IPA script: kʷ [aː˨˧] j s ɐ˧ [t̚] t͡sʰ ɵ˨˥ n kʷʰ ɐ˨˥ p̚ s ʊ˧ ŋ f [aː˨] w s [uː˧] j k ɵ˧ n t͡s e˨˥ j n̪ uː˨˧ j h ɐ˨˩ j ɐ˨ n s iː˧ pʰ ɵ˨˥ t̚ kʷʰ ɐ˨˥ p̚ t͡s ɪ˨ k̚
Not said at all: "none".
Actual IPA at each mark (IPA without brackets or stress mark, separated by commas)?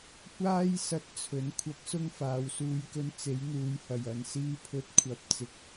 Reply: aː˥, t̚, aː˨, uː˨˧